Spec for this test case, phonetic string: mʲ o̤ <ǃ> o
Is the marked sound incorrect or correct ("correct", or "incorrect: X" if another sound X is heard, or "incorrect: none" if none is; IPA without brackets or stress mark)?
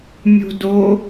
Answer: incorrect: d